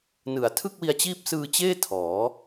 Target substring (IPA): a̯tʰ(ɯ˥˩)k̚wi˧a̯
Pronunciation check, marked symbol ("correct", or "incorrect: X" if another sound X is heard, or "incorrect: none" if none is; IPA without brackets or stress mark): correct